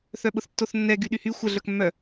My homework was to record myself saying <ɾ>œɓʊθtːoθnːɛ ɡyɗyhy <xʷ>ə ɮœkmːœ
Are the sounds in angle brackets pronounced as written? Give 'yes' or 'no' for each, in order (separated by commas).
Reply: no, yes